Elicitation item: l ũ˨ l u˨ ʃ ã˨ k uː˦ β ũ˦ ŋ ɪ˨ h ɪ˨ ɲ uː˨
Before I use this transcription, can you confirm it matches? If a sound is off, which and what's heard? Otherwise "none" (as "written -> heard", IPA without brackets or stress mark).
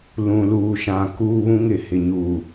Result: u˨ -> uː˨